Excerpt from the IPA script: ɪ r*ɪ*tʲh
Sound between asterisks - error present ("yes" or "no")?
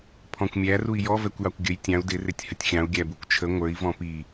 no